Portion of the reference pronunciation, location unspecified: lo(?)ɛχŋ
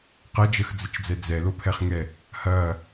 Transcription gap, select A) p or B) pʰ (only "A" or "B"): B